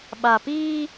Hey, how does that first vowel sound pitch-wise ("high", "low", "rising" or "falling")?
low